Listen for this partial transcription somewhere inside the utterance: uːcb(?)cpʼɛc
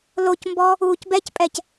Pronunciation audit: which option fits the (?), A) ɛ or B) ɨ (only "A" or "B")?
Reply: A